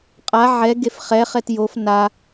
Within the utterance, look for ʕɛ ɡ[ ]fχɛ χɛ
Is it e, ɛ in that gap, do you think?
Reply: e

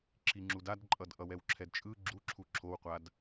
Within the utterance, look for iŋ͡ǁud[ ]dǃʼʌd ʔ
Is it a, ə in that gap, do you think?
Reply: a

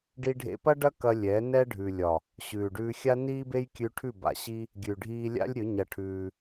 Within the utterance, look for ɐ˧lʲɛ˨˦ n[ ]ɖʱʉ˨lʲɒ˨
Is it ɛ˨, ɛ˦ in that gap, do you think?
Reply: ɛ˦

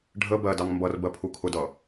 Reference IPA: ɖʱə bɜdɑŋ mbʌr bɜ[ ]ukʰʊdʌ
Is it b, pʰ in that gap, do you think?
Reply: pʰ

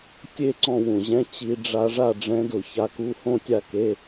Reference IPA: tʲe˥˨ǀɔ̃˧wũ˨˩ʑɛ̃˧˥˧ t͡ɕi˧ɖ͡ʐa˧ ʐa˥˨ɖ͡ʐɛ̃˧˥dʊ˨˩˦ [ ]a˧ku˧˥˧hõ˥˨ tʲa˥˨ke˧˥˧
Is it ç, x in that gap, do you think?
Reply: ç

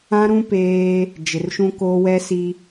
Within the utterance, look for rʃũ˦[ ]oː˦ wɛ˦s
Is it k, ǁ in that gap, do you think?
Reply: k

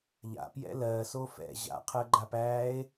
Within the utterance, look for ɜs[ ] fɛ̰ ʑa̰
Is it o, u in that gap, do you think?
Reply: o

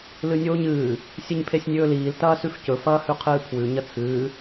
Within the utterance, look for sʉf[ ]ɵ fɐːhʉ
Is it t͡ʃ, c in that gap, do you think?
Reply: c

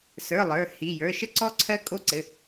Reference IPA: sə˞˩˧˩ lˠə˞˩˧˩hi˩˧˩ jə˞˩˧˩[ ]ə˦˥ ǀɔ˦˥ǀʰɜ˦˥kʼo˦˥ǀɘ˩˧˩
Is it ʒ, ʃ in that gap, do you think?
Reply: ʃ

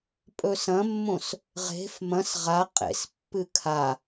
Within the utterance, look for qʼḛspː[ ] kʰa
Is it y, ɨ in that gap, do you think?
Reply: ɨ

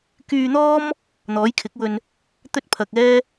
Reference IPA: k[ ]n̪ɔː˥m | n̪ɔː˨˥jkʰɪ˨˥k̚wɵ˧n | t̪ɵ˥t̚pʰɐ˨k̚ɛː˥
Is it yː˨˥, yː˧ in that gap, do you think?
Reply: yː˧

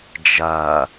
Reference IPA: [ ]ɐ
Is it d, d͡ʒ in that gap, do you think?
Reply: d͡ʒ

